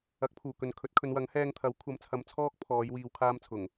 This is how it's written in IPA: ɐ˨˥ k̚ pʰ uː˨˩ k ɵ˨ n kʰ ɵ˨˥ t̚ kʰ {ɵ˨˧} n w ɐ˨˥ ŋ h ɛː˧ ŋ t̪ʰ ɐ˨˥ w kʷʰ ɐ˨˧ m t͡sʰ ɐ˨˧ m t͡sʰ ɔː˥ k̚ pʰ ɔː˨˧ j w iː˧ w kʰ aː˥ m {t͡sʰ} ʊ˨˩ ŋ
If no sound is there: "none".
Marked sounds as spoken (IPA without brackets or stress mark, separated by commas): ɵ˨˧, t͡sʰ